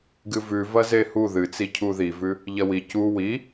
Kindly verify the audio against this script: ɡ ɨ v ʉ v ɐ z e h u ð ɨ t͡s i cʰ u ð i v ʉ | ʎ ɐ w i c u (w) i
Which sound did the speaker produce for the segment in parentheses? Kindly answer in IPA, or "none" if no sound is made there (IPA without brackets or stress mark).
w